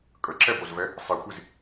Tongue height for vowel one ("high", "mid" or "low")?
mid